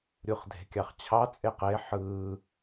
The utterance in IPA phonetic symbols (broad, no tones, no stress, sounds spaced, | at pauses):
ɾʲ u χ dʱ e̤ kʲ ɑ χ t͡ɕʰ ɑ t͡sʼ e q e ħ ɯ